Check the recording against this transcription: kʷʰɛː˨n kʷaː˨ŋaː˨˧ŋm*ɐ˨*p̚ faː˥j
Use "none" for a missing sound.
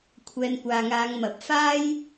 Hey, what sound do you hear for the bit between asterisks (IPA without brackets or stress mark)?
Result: ɐ˨